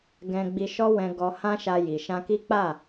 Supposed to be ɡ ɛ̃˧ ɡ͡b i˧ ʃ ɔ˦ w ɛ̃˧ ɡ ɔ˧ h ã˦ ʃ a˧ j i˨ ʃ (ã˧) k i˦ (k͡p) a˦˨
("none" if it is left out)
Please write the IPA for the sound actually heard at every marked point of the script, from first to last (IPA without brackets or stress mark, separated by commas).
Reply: ã˧, k͡p